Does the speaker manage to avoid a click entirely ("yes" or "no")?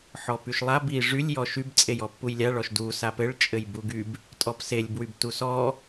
yes